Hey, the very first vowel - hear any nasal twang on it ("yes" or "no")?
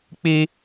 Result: no